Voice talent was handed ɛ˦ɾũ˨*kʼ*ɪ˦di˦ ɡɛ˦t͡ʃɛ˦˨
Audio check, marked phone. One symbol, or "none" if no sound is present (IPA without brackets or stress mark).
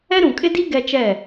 kʼ